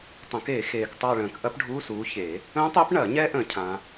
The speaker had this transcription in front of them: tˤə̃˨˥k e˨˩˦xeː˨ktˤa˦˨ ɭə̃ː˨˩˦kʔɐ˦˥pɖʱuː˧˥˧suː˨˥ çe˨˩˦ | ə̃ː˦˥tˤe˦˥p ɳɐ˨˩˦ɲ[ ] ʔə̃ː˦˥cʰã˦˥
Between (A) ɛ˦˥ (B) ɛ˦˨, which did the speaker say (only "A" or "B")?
A